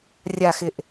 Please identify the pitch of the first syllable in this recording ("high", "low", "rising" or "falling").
low